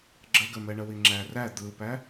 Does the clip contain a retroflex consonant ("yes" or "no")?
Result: yes